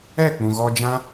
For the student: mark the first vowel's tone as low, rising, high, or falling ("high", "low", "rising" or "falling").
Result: falling